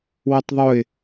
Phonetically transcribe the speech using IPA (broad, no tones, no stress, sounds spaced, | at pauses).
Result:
w ə tˤ ðˤ ʊ ɪ̯